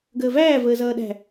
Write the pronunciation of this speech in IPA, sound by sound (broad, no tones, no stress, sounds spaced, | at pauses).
ɡ əː v æː v əː z ʌː ɗ æ̤